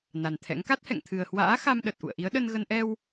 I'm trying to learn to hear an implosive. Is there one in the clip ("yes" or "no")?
yes